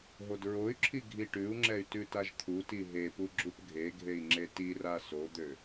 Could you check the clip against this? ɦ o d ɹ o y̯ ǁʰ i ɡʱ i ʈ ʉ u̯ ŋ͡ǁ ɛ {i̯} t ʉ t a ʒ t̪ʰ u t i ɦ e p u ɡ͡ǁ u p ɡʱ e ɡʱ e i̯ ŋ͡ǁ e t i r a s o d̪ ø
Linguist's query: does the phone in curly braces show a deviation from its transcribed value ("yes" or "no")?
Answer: yes